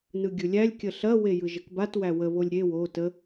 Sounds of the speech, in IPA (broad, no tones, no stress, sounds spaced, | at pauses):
n ɯ ɡʲ ɯ lʲ æ lʲ kʲ ə ɬ ɐ w e j ɯ ʒ ə k b a t w æ w ə β o lʲ ɾʲ e w o t ə